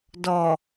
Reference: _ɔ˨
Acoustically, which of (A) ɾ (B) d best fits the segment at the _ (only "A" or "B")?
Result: B